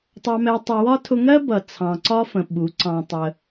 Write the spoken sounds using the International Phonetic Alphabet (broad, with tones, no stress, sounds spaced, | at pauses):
tˤ ɑ˧ m ɛ˧ tˤ ʊ˧ w ɒ˦ tʰ ʊ˧ ŋ ɜ˦ b ʌ˨ t͡sʰ ɑ̃˨ ǀ ɒ˦ f ə̃˨ ɓ u˨˦ ǀ ɑ̃˧ tˤ ə˧